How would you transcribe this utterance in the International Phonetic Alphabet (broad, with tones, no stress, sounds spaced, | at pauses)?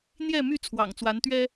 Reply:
n̪ j ɛ˥˨ m y˥˨ t͡sʰ w ɑ̰˨˩ ŋ t͡s w a˨˦ n t̪ ɥ ɛ˦